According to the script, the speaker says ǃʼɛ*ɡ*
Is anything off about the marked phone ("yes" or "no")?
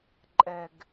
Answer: no